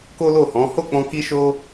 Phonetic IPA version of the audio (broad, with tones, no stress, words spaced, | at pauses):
ko˦lo˦˨hɔ̃˨˦ ho˦˨k͡pɔ̃˧ ki˦ʃo˦